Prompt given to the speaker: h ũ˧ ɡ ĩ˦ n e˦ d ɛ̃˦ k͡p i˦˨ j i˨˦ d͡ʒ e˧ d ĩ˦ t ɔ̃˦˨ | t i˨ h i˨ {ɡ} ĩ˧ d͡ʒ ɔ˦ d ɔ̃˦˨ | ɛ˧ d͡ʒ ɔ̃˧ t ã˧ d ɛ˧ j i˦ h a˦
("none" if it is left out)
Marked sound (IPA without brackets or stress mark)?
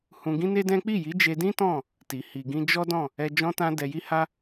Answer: ɡ